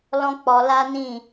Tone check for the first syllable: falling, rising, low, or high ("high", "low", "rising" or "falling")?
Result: high